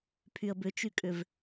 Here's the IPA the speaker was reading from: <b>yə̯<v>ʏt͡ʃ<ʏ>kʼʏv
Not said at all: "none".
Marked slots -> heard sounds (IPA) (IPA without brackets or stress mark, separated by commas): pʰ, b, y